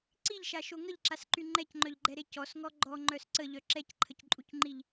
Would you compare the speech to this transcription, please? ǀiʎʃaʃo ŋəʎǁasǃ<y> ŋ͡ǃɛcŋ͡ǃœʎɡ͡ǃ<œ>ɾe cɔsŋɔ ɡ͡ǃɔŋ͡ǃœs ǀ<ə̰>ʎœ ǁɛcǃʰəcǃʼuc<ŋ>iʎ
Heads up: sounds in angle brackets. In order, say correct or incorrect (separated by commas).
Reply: correct, incorrect, incorrect, incorrect